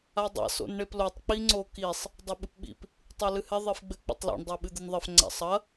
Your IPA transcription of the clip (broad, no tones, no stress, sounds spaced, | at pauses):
a dˤ a̰ s o̰ n ɳ e p l o tˤ k͡p i ŋ͡ǀ o k i sˤ | dˤ ɘ ɓ ɨ p ɓ ḭ p | tˤ o l ɨ h ɛ ðˤ i f ɡ͡b ɘ k͡p o̰ tˤ l o̰ ɳ dˤ ɛ ɓ ɨ d̪ ɨ n ðˤ ɘ f ŋ͡ǀ a̰ sˤ ɐ